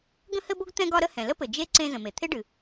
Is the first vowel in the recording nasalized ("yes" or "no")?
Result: yes